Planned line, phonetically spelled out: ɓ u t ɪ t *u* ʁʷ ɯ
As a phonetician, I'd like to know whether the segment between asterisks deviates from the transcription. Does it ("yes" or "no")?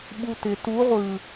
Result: no